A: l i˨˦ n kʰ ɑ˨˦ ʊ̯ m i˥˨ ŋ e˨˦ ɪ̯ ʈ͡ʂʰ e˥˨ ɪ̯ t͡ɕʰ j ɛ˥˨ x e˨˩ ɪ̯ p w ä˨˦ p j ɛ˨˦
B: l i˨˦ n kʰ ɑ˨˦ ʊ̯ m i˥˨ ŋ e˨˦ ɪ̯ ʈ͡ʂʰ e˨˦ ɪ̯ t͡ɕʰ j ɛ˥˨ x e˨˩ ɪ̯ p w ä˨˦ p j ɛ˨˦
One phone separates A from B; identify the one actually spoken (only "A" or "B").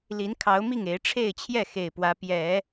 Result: A